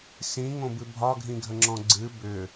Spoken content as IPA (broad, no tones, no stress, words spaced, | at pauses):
sĩŋõbɨ bʱɒɡʱĩɡʱəŋ͡ǁɔ̃ ɡ͡ǀɨ bʏ